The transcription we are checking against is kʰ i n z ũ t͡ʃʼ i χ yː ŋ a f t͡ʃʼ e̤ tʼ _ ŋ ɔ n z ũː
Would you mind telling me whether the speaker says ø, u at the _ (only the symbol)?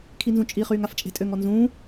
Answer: ø